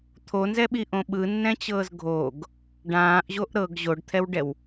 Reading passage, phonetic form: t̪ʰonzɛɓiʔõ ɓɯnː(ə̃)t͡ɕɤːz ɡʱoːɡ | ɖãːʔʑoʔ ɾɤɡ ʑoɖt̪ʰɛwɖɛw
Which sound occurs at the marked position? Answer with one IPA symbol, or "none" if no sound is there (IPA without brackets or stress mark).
ɛ̃